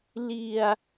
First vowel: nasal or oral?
oral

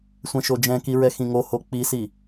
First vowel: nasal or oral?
nasal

